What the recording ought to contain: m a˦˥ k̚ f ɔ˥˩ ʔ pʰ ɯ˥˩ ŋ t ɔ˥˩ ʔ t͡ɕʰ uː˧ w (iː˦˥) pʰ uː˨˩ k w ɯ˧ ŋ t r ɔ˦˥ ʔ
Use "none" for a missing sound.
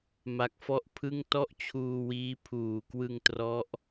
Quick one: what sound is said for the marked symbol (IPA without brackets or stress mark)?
iː˦˥